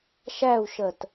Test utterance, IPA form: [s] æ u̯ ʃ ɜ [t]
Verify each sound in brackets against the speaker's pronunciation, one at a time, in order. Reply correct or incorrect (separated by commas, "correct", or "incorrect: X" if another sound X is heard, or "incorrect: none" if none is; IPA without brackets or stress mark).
incorrect: ʃ, correct